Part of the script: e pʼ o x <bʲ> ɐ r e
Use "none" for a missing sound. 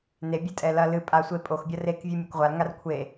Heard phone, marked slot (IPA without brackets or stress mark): bʲ